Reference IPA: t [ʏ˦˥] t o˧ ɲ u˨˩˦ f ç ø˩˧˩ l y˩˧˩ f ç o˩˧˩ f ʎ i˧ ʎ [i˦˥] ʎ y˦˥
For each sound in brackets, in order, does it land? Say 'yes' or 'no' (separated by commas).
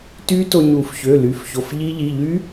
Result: no, no